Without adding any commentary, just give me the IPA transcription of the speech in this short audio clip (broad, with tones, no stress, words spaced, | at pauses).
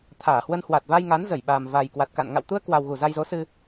t̪ʰaː˧˩hwə˧nhwa˨˩t̚ va˧jŋa˨˦nzə˧˩j ɓaː˨˩mva˨˩jkwa˨˩t̚ka̰˧˨n ŋa̰˧˨wt̪u˧ə̯kwa˨˩wɣu˧˩ za˧jzo˨˦sɨ˧